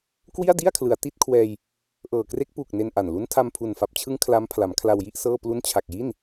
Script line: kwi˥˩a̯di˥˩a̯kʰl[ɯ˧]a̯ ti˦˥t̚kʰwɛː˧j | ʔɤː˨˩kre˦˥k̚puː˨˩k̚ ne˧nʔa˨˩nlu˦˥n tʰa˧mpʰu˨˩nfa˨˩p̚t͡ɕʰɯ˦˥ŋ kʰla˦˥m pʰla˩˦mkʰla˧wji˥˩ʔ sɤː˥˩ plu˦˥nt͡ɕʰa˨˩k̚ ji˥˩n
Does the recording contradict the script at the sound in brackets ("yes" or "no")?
yes